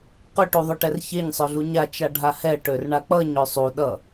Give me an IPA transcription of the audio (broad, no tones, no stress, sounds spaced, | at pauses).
q ø ʈ u ðˤ œ ʈ ɛ r ç e ɲ sˤ œ ɮ u ɲ a t͡ʃ a ɖʱ a h ɛ ʈ ø r ɳ a k͡p ʌ ɲ ø sˤ u ɗ ʌ